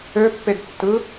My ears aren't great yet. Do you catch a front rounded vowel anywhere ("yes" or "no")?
yes